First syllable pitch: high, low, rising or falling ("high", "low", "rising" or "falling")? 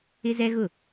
high